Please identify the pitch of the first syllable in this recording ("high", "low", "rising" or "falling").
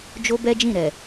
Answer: high